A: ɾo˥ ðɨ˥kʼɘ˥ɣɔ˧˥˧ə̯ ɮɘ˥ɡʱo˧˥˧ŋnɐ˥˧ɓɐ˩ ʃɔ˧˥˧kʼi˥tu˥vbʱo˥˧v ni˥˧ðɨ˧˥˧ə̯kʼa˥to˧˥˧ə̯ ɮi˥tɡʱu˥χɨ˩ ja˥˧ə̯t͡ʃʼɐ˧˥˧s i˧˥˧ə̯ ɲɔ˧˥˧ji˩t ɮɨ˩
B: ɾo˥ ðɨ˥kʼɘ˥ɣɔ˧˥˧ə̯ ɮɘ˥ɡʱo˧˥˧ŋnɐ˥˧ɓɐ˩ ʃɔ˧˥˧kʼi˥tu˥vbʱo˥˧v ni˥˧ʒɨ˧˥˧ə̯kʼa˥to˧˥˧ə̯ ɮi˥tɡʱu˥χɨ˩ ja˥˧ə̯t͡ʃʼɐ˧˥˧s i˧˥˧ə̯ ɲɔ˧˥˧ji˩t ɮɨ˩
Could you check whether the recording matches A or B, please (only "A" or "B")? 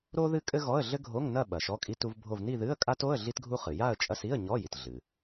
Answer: A